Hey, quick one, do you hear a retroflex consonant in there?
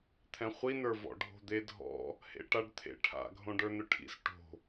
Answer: yes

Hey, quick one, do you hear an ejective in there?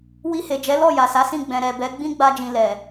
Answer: no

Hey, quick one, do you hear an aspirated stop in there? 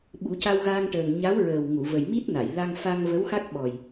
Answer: no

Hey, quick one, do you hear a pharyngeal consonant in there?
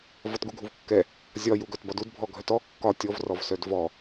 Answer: no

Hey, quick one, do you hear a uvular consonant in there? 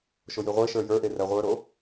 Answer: yes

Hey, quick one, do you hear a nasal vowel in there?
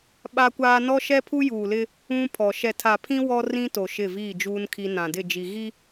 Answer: yes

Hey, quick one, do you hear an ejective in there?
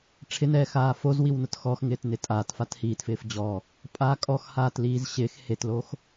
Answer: yes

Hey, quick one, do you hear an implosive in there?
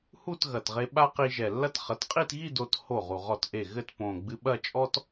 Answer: yes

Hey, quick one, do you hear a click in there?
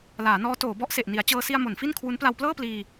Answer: no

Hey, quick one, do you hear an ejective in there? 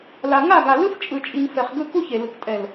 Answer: yes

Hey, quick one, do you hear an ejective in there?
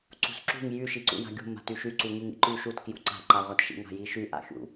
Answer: no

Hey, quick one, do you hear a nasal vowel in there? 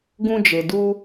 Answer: yes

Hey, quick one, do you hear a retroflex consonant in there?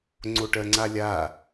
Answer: yes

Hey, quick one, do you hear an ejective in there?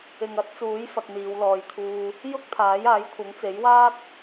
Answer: no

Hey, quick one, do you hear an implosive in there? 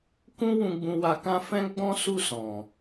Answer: no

